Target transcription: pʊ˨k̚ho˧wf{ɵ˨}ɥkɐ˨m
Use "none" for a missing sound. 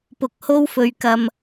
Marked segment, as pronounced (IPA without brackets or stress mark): ɵ˨